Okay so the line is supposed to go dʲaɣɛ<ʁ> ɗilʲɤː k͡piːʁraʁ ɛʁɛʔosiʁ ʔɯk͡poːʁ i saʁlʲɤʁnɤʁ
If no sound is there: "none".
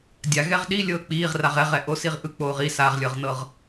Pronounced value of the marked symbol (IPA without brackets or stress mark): ʁ